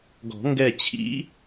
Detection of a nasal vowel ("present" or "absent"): absent